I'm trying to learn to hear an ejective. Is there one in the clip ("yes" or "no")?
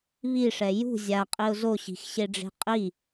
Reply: yes